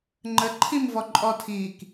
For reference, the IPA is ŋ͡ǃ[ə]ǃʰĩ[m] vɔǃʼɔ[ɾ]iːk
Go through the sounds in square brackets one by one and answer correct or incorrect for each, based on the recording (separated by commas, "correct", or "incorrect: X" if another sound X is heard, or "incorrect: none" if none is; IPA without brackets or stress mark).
correct, correct, incorrect: tʰ